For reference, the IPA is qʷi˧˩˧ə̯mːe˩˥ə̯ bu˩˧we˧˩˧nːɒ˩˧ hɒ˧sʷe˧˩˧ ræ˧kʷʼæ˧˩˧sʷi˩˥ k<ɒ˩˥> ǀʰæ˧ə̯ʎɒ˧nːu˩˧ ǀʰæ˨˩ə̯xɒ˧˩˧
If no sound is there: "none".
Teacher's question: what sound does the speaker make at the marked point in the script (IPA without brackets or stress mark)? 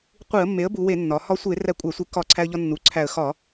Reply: ɒ˨˩